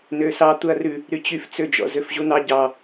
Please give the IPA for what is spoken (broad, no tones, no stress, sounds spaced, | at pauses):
n ø s ɑ t̪ u ɐ̯ r ʉ | ɾ y t͡ɕ y f t͡s ø d͡ʒ ɔ̰ z ø f ʑ u n̪ ɑ ɟ ɑ